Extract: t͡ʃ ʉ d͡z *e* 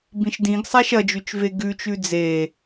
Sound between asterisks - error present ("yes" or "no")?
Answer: no